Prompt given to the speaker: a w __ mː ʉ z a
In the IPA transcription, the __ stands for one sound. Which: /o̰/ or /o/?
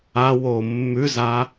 o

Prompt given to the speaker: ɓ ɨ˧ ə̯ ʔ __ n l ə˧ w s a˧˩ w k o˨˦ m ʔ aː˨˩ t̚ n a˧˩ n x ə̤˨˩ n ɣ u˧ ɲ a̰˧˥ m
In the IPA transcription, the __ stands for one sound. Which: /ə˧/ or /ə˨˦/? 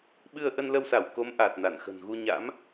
ə˧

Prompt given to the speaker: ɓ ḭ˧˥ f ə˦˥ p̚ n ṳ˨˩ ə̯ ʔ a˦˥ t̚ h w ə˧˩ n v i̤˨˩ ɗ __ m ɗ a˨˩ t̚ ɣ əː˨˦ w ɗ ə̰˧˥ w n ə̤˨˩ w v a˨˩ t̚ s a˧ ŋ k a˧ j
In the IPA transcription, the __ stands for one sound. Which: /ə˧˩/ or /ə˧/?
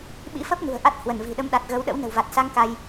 ə˧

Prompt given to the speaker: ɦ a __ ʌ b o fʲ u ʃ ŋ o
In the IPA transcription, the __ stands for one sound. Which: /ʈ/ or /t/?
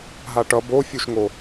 ʈ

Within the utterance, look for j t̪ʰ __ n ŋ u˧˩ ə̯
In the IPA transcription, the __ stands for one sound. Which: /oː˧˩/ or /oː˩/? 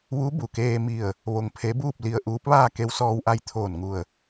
oː˧˩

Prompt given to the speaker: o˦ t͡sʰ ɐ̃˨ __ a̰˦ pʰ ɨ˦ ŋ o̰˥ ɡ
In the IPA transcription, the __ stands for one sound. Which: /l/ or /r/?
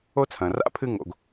r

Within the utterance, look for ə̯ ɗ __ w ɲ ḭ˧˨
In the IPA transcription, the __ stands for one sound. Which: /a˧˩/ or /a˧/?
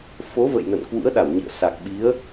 a˧˩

